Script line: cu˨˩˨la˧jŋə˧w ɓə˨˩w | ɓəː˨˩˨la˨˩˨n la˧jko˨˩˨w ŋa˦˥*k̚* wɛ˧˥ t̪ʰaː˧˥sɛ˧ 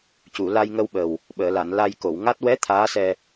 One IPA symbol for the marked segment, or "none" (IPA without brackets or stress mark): t̚